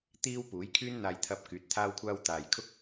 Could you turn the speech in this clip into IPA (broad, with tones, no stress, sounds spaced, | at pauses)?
t̪ iː˥ w p uː˨˥ j kʰ yː˥ n n̪ aː˧ j t̪ʰ ɐ˧ p̚ k yː˨˥ t̚ t̪ʰ aː˥ w kʷʰ aː˥ w t̪ aː˨ j kʰ ʊ˥ k̚